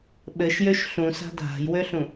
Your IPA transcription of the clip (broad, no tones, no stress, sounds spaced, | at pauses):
ɓ ɘ ʃ j ø ʃ ɬ ũ s a̤ dʱ a̤ j w ø ɬ ũ